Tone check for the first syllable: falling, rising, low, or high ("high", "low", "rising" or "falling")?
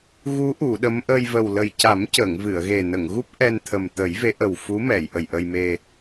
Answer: rising